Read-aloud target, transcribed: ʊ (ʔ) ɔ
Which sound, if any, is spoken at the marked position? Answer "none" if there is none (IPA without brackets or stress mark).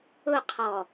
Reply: qʰ